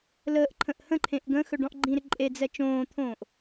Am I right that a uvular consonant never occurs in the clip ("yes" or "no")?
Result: yes